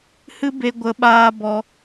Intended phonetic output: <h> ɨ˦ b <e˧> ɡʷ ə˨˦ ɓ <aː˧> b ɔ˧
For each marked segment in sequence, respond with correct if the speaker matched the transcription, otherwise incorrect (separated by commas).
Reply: correct, correct, correct